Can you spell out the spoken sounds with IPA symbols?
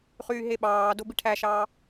χ yː ɦ e ɓ ɑː d o b i ʈʰ æ ʃ ɑː

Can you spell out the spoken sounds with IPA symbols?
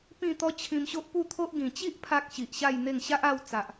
p ĩ˥˧ t̪ ɔ˦ t͡ɕʰ ĩ˧ m ɕ o˦ ʔ p u˥˧ t̪ʰ o˦ ʔ ɡ ĩ˨˩ t͡ɕ i˦ ʔ pʰ a˦ k̚ ɕ i˨ ʔ ɕ a˥˧ j n̪ e˥˧ ŋ ɕ a˦ ʔ a˥˧ w t͡s a˨ ʔ

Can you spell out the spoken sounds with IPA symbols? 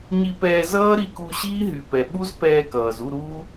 ɲ i˧ p ɛː˧ z ʌː˦ ɾ i˦˨ k u˧ ɕ iː˦ ɦ y˨ p ɛ˨ ɓ u˦ z p ɛː˧ k ʌː˨ z u˦˨ ɾ uː˦

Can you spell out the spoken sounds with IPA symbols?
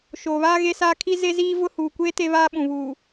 ʃ oː˨ β aː˦ ɣ e˦ s aː˦ kʰ i˦ z e˦ z iː˦ v ʊ˦ h uː˨ kʷ eː˦ t e˦ β aː˦ ɓ ũ˨ β uː˨

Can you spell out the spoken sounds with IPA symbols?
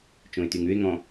t͡ʃ õ ɪ̯ t y ŋ ʉ ɪ̯ ŋ ɔ̃

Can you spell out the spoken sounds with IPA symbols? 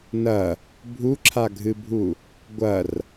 n ɐ | bʱ u ǁʰ a ɡʱ ɨ bʱ u | ɡʷ ɐ r

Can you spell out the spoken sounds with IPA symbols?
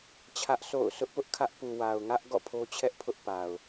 t͡ɕʰ ä˦ ʔ s o̰˦˨ ʊ̯ sʰ ʊ˦ ʔ p ʊ˦ ʔ kʰ ä˦ ʔ p u˨ w a˨ ʊ̯ ŋ ä˦ ʔ ɡ ɔ̰˦˨ pʰ o˦ t͡ɕʰ ɛ˦ ʔ pʰ ʊ˦ ʔ p a˨ ʊ̯

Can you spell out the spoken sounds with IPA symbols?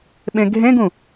ɓ ẽ ɡʱ ẽ ɡ ũ

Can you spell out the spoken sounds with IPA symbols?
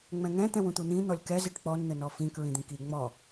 ŋ͡m ɛ̃ ŋ ɛ̃ t̪ ɛ̃ w ũ t̪ u n̪ ĩ n̪ ɔ lʲ k ɛ z i ʈ k͡p ɔ n n̪ ɘ n ɔ f ĩ k ɹ ĩ d̪ ĩ k i ŋ͡m ɔ

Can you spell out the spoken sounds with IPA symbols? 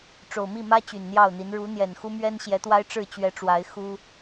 ʈ͡ʂ o˨˩ ʊ̯ m i˥˨ m ä˦ t͡ɕ y˨˩ n n̪ j ɑ˥˨ ʊ̯ n̪ i˨˦ n ɻ u˨˦ n̪ j ɛ˨˩ n x u˦ m ɥ ɛ˦ n ɕ j ɛ˨˦ t̪ w a˦ ɪ̯ ʈ͡ʂ ɻ̩˥˨ t͡ɕ ɥ ɛ˨˦ ʈ͡ʂ w a˨˦ ɪ̯ x u˦

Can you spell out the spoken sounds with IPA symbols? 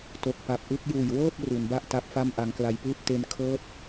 t o˨˩ k̚ p a˨˩ p̚ ʔ ɯ˥˩ k̚ j uː˨˩ j w ɤː˥˩ p̚ r u˩˦ n b a˥˩ ʔ t a˦˥ p̚ f a˥˩ m ʔ a˧ ŋ k l a˧ j p ɯː˥˩ p̚ t e˧ n kʰ ɤː˥˩ t̚

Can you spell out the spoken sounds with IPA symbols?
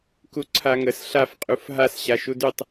k u ǀʰ a ŋ ə s ɬ a f qʼ u f ɦ a s ɕ a ʃ u d y tˤ

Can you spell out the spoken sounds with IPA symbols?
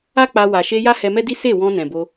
a˦ k͡p a˧ w a˨ ʃ e˧ j a˦ h ɛ˧ m ɛ˦ d i˦ s e˦˨ w ɔ̃˧ n ɛ̃˨ b o˧

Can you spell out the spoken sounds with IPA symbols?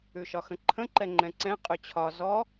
ʉ ʃ ɒ x ə̃ ǃʰ ə̃ ǃ ɛ ŋ͡ǃ ɛ̃ ǀ ɛ̃ qʼ ʉ t͡ɕʰ ɒ z ɔ

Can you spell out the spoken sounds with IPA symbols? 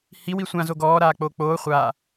h i w i sʷ ã z o ɡ ɔː ɾ aː k͡p oː k͡p oː χʷ aː

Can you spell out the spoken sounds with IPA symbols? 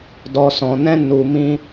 d ɔ˨ s ɔ̃˨ n ɛ̃˧ n u˨ m ĩ˧

